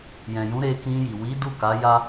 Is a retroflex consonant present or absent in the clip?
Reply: absent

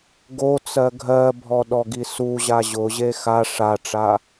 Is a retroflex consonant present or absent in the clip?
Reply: present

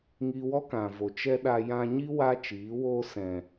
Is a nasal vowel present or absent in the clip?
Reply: present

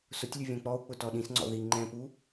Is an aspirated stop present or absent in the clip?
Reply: absent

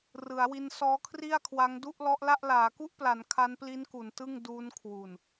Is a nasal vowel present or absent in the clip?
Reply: absent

